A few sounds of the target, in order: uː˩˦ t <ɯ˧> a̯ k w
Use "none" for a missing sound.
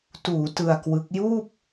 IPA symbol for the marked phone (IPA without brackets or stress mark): ɯ˧